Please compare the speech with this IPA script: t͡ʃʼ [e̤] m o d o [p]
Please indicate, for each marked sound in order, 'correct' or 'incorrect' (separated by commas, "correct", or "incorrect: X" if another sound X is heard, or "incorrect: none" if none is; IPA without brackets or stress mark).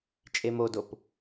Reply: incorrect: e, correct